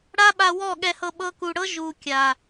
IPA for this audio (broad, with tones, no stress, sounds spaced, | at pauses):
ɽ a˦ ɓ a˧ w ɔ˦˨ ɠ ɛ˧ h ɤ˧ ɓ ɤ˧ k u˨ ɽ ɤ˦ ʒ u˨ kʲ a˨